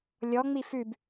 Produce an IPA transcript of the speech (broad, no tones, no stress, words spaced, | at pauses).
lʲɔŋ͡mi fʉb